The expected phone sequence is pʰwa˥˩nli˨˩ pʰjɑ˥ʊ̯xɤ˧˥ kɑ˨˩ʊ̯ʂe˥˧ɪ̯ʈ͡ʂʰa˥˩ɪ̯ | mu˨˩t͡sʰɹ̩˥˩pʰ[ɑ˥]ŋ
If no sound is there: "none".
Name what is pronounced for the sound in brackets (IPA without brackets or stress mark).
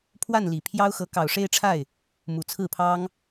ɑ˥